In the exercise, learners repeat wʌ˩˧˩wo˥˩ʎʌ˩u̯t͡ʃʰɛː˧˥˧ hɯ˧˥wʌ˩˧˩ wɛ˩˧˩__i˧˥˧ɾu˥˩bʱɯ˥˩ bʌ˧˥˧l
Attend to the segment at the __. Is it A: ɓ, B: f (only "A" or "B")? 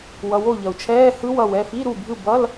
B